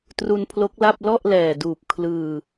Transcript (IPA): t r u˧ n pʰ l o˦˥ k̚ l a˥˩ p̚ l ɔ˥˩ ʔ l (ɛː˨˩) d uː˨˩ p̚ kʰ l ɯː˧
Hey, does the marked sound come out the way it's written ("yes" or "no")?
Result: yes